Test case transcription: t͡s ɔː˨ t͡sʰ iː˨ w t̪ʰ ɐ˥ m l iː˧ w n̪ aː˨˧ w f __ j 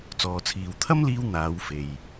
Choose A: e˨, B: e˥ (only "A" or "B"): A